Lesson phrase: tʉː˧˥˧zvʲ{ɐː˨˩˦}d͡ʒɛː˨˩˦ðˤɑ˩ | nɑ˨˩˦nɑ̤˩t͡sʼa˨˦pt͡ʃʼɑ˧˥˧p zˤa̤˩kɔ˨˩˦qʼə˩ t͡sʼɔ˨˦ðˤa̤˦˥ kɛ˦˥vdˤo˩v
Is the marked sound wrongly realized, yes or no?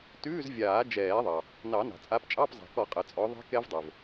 yes